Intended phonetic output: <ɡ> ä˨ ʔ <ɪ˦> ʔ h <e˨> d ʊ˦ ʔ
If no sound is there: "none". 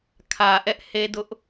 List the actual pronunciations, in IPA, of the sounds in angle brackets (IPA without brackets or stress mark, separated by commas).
kʰ, ɛ˦, e˦